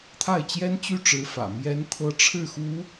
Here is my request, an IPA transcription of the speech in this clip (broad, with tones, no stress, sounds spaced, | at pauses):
t̪ʰ a˥˩ ɪ̯ t͡ɕ j ɛ˥ n t͡ɕ y˥˩ ʈ͡ʂ ɻ̩˧˥ f ä̰˨˩ m j ɛ˧˥ n t̪ʰ ɤ˧˥ ʈ͡ʂʰ ɻ̩˥˩ x u˧˥